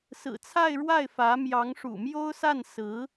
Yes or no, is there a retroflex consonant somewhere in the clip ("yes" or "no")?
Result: yes